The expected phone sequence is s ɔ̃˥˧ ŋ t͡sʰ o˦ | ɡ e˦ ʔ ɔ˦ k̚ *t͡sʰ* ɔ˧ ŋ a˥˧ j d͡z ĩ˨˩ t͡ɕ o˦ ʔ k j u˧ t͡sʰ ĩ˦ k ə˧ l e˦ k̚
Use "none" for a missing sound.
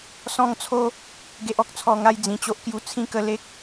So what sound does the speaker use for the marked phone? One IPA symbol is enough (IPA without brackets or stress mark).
t͡sʰ